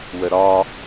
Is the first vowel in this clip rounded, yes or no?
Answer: no